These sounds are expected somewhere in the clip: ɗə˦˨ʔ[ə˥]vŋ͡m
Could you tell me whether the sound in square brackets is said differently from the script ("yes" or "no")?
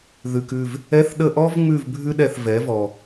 yes